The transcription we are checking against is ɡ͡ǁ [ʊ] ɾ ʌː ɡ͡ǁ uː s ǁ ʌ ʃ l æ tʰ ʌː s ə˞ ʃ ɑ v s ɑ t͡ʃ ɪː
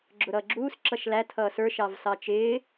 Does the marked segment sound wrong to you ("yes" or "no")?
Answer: no